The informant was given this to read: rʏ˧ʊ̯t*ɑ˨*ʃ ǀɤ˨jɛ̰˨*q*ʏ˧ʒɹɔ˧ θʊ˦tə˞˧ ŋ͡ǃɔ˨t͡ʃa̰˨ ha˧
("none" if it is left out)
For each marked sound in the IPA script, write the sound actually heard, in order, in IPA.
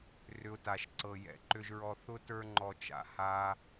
a˨, ǃ

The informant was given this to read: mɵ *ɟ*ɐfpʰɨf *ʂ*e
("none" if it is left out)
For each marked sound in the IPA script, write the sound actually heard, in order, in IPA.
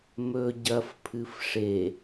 ɟ, ʂ

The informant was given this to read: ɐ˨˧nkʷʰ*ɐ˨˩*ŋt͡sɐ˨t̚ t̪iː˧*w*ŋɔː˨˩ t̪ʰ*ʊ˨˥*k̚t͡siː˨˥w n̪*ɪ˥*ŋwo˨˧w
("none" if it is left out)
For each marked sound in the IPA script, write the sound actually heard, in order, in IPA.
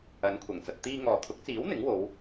ɐ˨˩, none, ʊ˨˥, ɪ˨˥

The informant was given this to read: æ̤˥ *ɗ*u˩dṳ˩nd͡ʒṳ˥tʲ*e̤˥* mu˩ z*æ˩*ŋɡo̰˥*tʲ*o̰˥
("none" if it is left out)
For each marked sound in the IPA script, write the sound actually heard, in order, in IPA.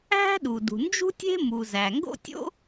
ɗ, e̤˥, æ˩, tʲ

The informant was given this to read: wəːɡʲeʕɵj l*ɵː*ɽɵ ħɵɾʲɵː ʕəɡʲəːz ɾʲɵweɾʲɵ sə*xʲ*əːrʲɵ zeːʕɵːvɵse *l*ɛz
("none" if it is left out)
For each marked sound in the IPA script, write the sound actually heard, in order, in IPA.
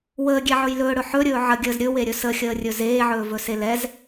ɵː, xʲ, l

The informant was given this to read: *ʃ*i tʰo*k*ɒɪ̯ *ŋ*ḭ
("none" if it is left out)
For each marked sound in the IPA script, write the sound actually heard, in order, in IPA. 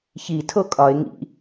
ç, kʼ, ŋ

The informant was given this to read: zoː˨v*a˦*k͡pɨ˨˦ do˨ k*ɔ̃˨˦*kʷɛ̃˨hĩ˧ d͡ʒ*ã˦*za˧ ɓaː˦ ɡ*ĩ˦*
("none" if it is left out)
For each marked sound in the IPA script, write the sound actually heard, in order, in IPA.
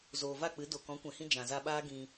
a˦˨, ɔ̃˨˦, ã˨, ĩ˧

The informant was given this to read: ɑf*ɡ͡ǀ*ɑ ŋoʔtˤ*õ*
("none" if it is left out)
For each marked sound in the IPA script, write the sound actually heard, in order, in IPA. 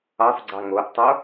ɡ͡ǀ, o

